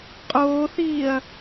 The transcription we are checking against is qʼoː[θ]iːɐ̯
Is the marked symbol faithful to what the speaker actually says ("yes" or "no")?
yes